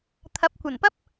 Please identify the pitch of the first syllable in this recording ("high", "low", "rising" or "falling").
rising